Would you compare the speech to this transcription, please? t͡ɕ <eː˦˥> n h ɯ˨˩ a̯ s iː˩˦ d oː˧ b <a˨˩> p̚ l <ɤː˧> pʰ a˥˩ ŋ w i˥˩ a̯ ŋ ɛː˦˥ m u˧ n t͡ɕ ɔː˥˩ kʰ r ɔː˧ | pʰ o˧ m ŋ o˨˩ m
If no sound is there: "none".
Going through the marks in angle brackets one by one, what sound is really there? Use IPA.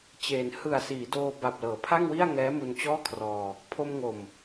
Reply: eː˩˦, a˨˩, ɤː˩˦

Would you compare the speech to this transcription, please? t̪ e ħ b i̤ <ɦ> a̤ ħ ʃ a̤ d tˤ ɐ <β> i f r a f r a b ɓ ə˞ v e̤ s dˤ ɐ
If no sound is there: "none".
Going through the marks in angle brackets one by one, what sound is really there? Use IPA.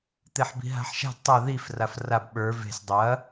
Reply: ɦ, ð

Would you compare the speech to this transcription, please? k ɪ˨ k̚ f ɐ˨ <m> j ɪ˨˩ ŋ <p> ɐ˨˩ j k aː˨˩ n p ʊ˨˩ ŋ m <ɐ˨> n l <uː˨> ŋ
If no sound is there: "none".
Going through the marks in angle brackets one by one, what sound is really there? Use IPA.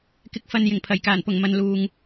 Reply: n, pʰ, ɐ˨, uː˨

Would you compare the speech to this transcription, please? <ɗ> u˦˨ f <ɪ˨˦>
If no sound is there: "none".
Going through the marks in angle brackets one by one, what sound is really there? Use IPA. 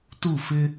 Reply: t, ɪ˦

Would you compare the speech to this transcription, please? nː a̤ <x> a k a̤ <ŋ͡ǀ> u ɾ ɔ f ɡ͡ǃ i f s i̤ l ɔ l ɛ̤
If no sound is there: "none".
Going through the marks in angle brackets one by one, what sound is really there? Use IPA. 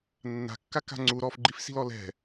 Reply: kː, ŋ͡ǀ

